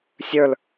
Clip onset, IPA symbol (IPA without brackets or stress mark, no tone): sʲ